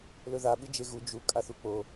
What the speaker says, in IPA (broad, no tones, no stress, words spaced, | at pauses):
lɵða ɓɨd͡ʒeɣu d͡ʒu kʼaθuk͡po